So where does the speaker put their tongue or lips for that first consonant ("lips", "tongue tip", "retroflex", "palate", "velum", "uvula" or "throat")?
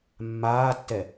lips